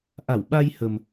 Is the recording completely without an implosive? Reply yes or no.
no